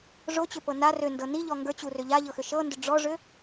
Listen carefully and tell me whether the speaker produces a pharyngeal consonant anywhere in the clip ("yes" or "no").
no